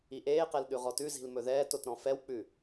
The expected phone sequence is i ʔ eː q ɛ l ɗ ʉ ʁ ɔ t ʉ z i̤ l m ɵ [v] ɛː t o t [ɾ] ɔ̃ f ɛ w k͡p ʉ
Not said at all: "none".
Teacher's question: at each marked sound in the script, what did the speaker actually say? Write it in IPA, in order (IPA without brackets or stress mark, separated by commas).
ð, ɾ